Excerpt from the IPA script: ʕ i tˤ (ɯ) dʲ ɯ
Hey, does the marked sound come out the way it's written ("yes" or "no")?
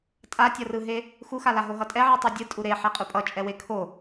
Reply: no